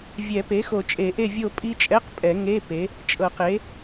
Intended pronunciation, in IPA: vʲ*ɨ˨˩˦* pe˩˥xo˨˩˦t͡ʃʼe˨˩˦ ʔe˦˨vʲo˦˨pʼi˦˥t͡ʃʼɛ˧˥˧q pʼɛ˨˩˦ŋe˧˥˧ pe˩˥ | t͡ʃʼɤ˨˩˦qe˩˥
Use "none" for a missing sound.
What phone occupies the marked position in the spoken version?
ɛ˨˩˦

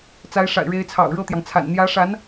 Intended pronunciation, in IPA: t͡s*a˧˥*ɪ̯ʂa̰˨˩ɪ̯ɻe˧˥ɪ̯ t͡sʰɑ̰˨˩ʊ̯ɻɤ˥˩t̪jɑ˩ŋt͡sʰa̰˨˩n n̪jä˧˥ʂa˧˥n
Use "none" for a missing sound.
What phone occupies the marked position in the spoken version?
a˧˥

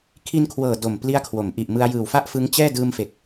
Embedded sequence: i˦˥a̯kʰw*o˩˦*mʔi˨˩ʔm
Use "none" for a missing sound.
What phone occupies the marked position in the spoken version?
o˩˦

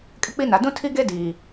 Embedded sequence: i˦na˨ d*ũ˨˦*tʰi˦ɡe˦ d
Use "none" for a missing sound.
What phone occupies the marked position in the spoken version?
ũ˦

